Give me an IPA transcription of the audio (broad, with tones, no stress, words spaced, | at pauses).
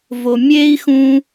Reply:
vo˨ mʲeː˥i̯xũ˦